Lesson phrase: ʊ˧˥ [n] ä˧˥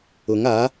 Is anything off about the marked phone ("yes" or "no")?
yes